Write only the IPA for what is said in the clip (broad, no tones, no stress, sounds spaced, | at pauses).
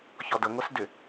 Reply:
ç ɔ d ə ŋʷ ɛ s d ʏ